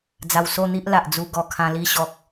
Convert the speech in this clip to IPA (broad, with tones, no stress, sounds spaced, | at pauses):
d͡z a˧ w s o˥˧ n̪ i˦ ʔ l a˨ ʔ d͡z u˧ ɡ ɔ˧ kʰ ã˧ l i˧ ɕ ɔ˨ k̚